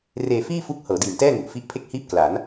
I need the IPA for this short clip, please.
r eː˧ f iː˥˩ f u˦˥ k̚ h ɤː˩˦ d iː˨˩ m t ɛː˥˩ ŋ u˨˩ ʔ f i˦˥ ʔ pʰ e˥˩ k̚ h iː˥˩ p̚ k l a˩˦ n

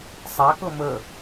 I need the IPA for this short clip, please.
sˤ a k ɤ m ə

